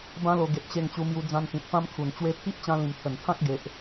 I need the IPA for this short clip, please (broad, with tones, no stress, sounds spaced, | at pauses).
b ã˦ l o˧ ɡ e˨ t̚ ɕ e˧ ŋ t͡ɕ u˧ m j u˧ d͡z ã˧ n t̪ ĩ˨ t̚ p ã˦ m kʰ u˨˩ n t͡ɕ w e˦ pʰ i˦ ʔ t͡ɕ ã˧ l ĩ˨˩ m t̪ʰ ə˨˩ n t̪ʰ ã˦ k̚ ɡ e˨ ʔ